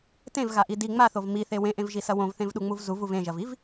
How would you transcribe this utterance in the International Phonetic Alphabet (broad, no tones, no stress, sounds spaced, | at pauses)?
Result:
t ẽ v ɣ a ʔ i d i ŋ͡m a θ o v m i θ e w ẽ ʔ ẽ v ʒ i s ɐ w õ v θ ẽ v ɗ u ŋ͡m u v z u v u v ẽ ʒ ɐ v i v